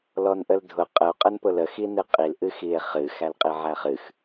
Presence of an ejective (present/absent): present